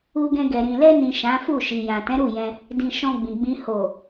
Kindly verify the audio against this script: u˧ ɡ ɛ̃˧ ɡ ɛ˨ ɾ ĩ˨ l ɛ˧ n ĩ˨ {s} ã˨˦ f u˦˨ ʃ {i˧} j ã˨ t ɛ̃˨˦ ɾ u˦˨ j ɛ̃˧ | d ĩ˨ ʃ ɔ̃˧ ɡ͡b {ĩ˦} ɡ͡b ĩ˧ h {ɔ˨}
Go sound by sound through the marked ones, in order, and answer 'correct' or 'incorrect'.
incorrect, incorrect, incorrect, incorrect

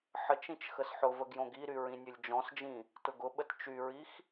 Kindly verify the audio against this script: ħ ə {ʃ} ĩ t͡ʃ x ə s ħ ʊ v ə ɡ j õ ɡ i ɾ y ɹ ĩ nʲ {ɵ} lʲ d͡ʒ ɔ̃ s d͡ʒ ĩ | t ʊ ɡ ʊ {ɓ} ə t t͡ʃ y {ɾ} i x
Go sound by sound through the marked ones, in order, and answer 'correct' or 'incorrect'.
incorrect, correct, correct, incorrect

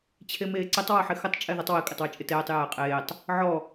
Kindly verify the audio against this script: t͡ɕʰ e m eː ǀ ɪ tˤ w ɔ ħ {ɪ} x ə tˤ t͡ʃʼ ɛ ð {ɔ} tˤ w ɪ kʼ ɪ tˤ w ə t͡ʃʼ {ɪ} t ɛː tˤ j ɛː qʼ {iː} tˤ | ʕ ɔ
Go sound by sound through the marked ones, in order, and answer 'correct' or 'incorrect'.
correct, incorrect, correct, incorrect

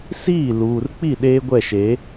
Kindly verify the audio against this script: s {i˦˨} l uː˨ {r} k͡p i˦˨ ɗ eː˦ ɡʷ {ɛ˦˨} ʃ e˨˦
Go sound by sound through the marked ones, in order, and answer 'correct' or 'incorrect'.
incorrect, correct, correct

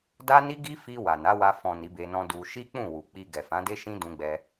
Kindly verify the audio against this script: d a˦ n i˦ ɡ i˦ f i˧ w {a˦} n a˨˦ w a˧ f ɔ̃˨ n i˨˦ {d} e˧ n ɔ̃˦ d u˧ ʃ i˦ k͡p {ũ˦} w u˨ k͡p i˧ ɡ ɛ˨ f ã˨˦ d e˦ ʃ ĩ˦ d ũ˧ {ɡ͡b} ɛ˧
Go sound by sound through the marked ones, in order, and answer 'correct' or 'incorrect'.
incorrect, incorrect, incorrect, correct

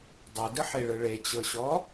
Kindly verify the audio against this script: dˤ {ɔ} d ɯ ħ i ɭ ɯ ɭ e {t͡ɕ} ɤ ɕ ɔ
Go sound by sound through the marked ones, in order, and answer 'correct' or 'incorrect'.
incorrect, correct

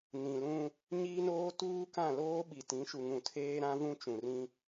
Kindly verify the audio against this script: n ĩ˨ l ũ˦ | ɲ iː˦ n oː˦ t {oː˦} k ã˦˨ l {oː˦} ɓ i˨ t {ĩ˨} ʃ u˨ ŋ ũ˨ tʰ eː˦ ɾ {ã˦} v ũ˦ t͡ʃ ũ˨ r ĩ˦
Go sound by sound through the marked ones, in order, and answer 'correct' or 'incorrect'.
incorrect, correct, incorrect, correct

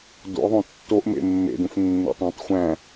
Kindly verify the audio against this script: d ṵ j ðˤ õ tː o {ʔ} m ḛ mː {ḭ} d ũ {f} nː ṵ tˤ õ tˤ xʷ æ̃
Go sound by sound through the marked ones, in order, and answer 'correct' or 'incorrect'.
correct, incorrect, correct

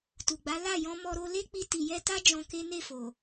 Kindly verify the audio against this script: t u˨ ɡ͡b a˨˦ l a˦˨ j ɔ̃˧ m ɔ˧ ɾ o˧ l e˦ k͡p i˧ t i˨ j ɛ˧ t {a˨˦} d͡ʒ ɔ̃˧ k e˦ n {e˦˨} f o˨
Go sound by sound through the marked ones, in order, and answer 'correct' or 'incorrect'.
incorrect, correct

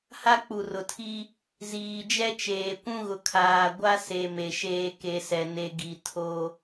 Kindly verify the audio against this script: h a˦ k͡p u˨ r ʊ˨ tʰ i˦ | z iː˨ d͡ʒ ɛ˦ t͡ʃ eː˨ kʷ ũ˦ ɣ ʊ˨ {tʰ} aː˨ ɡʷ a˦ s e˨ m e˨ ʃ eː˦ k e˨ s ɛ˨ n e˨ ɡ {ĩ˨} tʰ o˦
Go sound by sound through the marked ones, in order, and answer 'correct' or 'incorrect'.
incorrect, incorrect

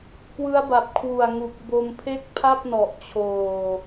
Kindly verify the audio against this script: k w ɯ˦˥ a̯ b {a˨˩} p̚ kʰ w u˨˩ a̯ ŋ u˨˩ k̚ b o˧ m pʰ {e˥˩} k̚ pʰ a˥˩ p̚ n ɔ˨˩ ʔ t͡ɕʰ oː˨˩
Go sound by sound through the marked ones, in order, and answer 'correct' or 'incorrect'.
correct, correct

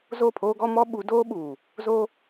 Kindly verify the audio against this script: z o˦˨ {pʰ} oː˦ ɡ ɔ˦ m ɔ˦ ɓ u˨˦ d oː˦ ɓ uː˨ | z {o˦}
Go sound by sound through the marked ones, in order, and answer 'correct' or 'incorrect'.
correct, correct

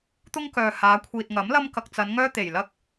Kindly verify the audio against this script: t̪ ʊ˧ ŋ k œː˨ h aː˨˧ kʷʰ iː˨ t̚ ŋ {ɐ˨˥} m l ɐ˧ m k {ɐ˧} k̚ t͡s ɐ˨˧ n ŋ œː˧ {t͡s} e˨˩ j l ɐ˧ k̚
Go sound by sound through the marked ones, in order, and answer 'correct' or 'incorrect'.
correct, incorrect, incorrect

